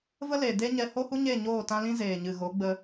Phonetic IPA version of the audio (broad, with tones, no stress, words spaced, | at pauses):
və˦le˨ de˦ɲɛ˧ ho˦hu˦ɲe˦˨ɲoː˦˨ tã˧lĩ˧zeː˨ɲɨ˨ ɣo˨˦ɡ͡bə˧